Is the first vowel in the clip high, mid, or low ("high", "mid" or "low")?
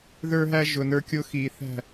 mid